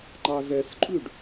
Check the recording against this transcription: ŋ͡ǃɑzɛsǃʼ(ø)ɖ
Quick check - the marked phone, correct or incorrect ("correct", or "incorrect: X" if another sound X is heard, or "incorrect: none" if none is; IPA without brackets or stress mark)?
incorrect: ʉ